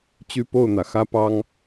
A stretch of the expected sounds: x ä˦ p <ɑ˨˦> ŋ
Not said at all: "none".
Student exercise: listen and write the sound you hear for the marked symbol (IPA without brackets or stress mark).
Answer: ɑ˦